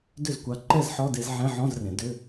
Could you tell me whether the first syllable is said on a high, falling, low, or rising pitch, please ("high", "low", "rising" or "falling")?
falling